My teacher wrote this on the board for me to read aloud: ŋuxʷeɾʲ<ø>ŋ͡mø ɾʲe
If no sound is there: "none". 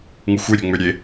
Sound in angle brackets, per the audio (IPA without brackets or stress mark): ø